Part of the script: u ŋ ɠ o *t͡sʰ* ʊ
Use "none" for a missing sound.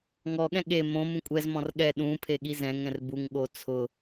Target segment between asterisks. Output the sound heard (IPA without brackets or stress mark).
t͡sʰ